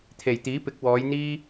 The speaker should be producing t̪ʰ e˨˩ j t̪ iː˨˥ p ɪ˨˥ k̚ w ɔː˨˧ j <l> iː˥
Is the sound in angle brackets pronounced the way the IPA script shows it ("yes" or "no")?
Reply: no